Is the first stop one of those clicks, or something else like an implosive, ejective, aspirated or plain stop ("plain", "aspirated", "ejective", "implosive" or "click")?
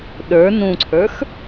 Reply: implosive